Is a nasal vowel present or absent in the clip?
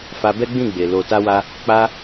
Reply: present